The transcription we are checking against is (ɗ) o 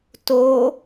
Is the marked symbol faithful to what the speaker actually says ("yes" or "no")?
no